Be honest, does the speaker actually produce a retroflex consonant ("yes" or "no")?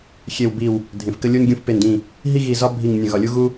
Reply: no